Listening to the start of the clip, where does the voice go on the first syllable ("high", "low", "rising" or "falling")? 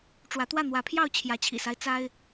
rising